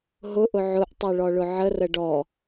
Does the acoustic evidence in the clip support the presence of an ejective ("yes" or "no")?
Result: no